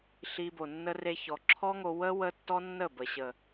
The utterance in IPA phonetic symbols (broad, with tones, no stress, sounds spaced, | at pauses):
ɬ i˧ b o˨ nː ə˦ r e˧ ç ɔ˨ ǁʰ ɔ˦ ŋ o˧ w ə˦ w ə˧ tː ɔ˦ nː ə˦˨ b ə˨ ɕ ə˨